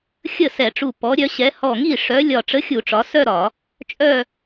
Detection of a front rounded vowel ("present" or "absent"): present